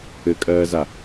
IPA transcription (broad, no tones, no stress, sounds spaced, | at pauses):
ɘ kʼ ɜː z a